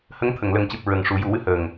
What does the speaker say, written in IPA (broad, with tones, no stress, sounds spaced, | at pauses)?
h ə˧˥ ŋ t̪ʰ ə˨˩˨ ŋ l ə˨˩ ŋ c ɨ˨˩ p̚ ɹ ə˨˩ ŋ ʂ u˨˩˦ j u˨˩˦ w ɨ˧ h əː˨˩ ŋ